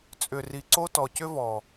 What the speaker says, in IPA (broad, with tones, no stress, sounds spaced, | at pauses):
t͡sʼ ʏ˨ r i˨ ǀ o˦ t ɔ˨ c ʏ˦ v ɔ˨